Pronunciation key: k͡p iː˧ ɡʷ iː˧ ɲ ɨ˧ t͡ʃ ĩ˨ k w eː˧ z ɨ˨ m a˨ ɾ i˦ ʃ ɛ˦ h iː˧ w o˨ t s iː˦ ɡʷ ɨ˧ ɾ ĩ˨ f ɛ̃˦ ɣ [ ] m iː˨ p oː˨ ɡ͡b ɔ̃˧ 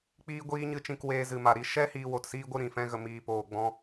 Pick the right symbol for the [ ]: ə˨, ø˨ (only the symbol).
ə˨